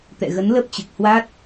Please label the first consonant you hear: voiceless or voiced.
voiceless